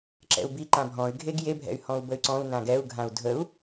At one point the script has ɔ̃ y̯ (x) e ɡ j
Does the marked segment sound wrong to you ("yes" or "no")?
yes